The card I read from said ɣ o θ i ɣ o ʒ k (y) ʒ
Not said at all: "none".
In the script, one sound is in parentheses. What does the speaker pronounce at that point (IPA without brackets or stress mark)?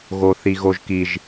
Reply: i